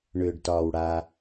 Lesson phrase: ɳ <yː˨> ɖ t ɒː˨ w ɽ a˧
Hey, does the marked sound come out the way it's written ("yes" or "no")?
no